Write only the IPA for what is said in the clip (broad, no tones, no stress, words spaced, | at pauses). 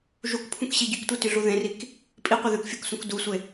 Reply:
ʒukpʰũkɕi ɟʉktʷityɮu ðẽrik | pʼiqʷi ðʉkfʲuksũk dusʷe